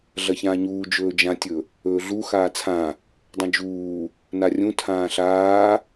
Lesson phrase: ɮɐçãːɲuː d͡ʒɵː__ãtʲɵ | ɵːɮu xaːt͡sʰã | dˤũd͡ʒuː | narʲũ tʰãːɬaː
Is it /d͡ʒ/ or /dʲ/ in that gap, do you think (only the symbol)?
d͡ʒ